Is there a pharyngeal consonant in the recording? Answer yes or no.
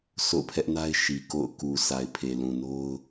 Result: no